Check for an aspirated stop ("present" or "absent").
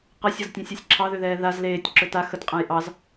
present